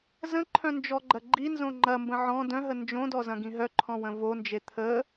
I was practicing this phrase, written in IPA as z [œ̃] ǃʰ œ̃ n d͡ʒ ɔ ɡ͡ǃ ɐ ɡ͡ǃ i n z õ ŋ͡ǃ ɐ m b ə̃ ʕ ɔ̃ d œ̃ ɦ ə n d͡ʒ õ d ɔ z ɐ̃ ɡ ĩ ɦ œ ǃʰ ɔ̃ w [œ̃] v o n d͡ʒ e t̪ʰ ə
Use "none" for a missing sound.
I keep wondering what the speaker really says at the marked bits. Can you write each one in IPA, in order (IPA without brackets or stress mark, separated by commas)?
ə̃, ə̃